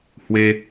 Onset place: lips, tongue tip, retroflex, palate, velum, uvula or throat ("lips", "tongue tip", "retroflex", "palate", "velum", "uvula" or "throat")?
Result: throat